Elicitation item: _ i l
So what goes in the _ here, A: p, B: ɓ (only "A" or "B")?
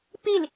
A